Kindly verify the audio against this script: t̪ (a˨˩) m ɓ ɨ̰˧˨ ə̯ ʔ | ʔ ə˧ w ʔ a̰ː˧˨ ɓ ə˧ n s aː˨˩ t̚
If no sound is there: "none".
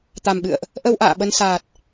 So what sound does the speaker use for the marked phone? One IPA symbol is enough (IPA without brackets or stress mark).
a˨˩